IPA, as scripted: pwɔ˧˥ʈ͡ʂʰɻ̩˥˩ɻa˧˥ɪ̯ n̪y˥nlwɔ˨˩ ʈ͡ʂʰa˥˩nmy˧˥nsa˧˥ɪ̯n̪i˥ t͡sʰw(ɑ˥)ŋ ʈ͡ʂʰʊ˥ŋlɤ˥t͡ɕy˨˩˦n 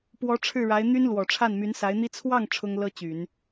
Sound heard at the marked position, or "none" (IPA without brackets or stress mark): ɑ˥˩